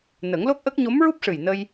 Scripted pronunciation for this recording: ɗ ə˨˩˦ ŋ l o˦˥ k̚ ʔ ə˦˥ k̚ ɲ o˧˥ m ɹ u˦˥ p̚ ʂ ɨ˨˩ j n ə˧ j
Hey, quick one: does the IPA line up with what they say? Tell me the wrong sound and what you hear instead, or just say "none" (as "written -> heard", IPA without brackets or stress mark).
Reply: ɗ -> n